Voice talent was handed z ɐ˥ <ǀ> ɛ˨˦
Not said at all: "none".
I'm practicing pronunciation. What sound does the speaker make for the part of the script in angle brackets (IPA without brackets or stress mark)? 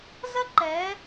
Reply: ǃ